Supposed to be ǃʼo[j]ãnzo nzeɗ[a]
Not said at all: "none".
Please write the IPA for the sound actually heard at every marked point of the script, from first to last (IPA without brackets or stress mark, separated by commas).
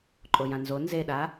j, a